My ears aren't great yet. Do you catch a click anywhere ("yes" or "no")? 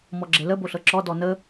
yes